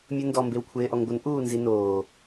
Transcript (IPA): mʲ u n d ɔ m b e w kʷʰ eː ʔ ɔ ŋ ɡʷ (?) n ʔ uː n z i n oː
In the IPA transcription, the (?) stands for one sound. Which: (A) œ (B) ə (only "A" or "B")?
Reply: B